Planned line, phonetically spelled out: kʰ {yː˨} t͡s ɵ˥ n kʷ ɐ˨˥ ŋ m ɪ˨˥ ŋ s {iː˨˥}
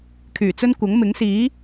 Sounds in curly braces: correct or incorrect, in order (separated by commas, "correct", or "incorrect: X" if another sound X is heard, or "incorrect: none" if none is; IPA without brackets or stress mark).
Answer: incorrect: yː˨˩, correct